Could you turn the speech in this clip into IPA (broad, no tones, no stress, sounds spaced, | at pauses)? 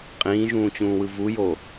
qʼ ĩː ʒ ũː t͡ɕ ũː w ɯ v u j o